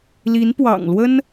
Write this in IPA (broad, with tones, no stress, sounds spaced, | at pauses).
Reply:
l i˧˥ n p w ɑ̰˨˩ ŋ l w ə˥ n